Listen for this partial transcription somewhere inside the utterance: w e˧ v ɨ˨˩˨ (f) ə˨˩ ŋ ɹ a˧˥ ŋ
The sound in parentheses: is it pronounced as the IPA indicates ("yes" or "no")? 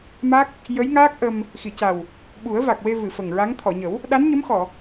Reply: yes